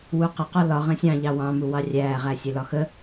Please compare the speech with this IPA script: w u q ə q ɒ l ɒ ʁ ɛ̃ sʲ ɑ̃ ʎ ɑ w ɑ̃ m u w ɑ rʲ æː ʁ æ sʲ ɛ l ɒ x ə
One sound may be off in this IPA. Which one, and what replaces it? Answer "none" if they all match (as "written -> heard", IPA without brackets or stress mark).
none